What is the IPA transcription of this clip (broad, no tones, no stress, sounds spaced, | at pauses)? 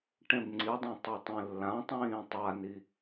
ʈ ẽ b ŋ͡ǀ i dˤ ũ tˤ ɵ tˤ ĩ lː ã tˤ ĩː tˤ a n i